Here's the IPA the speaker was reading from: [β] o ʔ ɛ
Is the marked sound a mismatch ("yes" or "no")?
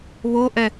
no